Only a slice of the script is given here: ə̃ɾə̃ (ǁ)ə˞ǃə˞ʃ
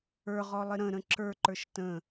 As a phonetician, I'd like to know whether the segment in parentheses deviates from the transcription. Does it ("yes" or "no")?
no